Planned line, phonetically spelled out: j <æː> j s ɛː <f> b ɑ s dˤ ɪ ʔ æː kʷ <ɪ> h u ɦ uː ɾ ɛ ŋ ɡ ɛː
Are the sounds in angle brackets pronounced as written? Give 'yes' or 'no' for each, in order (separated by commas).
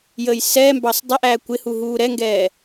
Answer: no, no, yes